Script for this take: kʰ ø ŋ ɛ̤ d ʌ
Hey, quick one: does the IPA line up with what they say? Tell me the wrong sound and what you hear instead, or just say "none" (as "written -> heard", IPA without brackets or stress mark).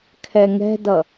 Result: ø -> ɛ